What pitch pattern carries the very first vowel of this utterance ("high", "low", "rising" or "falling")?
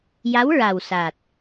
rising